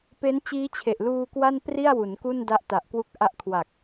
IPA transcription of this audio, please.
p e˦˥ n t͡ɕ iː˦˥ t͡ɕʰ e˨˩ ʔ l uː˧ k w a˥˩ n p r i˥˩ a̯ w u˩˦ n k u˥˩ n d a˦˥ ʔ t a˨˩ ʔ k w u˦˥ k̚ ʔ a˦˥ ʔ kʰ w a˨˩ k̚

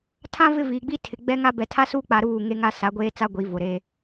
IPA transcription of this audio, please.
tʰ ã˦ v ɪ˦ v iː˨ ɡ͡b i˦ tʰ ɪ˨ ɡ͡b ɛ˦ ŋ a˦ b ɛ˨ tʰ a˦ s uː˦ k͡p a˨ ɾ uː˦˨ ŋ e˦ ŋ a˦ s a˨˦ ɡʷ eː˦ t͡s a˦ ɡʷ i˨˦ v ʊ˨ ɾ eː˦

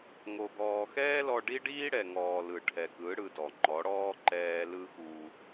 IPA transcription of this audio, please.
ŋ o˨ ɡ ɔː˨ x ɛː˦ l ɔ˧ ɖ i˦ ɖ iː˦ ɽ ɛ˨ ŋ ɔː˨ l ɯ˨ ʈʰ ɛ˨ k ɯ˨˦ ɽ ɯ˧ d ɔ˨ ŋ͡ǃ ɔ˨˦ ɽ ɔː˦ ǃ ɛː˦ l ɯ˦ x u˧

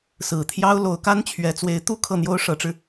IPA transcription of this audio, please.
s ɹ̩˨˩ t̪ʰ j ɑ˥ ʊ̯ l o˧˥ ʊ̯ k a˥ n t͡ɕʰ ɥ ɛ˧˥ t͡s w e˧˥ ɪ̯ t̪ u˥ kʰ ɤ˥˩ n̪ j o˥ ʊ̯ ʂ ɤ˧˥ ʈ͡ʂ ɻ̩˧

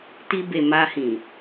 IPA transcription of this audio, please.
t i˧ b e˨ m a˧ h ĩ˨

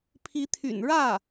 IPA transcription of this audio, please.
pʰ i˧˥ t̪ʰ y̰˨˩ n ɻ ä˥˩

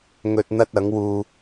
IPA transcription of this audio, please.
ŋ ɵ˧ t̚ n̪ ɐ˥ t̚ ɐ˨˥ ŋ w uː˨

